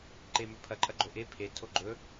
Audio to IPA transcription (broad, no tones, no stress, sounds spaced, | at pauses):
ǃ e m ɵ pʰ ɐ ǃʼ ɐ ɡ͡ǃ o ʔ e pʰ e tʰ o ɡ͡ǃ ɵ